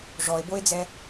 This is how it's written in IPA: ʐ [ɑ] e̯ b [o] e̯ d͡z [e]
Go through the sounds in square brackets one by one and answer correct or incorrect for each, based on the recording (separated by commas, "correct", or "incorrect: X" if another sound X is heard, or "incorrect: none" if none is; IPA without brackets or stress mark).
incorrect: ɔ, correct, incorrect: ɛ